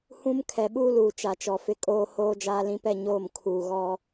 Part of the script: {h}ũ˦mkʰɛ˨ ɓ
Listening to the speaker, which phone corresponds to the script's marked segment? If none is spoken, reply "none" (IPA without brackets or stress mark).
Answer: h